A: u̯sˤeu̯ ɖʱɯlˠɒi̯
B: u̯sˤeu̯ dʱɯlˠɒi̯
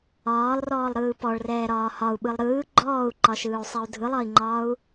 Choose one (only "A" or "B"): B